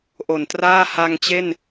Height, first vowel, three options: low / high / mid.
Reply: mid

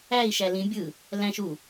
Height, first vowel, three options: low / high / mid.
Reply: low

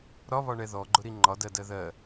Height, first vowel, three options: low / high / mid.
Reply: low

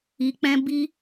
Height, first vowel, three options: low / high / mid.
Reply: high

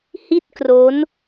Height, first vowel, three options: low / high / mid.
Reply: high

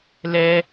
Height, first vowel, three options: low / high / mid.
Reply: mid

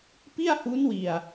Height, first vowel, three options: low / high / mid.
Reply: high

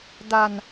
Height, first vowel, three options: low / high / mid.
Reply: low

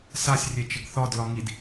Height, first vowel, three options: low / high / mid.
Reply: low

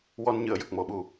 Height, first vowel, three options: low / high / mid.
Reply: mid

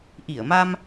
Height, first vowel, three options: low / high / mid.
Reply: high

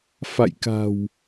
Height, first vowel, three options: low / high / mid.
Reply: low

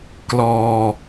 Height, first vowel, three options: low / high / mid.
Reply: mid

